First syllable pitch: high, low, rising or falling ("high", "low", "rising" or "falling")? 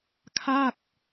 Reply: falling